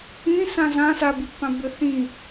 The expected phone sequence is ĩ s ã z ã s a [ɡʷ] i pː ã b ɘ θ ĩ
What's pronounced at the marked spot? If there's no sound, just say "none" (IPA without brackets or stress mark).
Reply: b